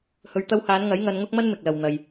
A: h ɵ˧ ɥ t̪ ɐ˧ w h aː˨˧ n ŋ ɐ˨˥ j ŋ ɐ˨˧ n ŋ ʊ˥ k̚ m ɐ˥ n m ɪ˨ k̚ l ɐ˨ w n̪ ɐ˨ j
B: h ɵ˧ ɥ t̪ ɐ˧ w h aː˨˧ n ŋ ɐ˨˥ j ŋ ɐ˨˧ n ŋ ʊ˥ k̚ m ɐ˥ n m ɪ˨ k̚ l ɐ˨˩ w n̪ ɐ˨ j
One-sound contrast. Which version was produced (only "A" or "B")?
A